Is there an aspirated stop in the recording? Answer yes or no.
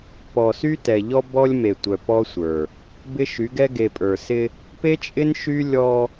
no